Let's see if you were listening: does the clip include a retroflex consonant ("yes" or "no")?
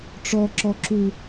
yes